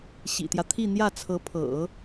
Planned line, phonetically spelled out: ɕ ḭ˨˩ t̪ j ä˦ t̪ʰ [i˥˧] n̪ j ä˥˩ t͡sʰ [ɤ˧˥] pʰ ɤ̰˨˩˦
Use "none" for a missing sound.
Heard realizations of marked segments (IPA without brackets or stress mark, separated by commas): i˥˧, ɤ˧˥